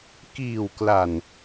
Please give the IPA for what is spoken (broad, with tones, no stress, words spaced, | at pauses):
kiː˨˩wkla˨˩n